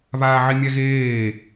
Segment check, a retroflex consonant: absent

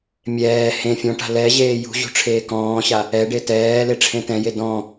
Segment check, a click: absent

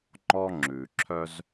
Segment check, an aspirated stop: present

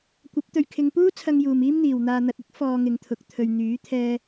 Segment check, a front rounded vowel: present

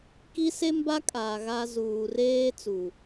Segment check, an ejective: present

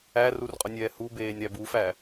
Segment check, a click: absent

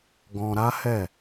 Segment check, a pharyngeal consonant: absent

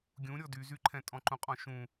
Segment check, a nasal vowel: present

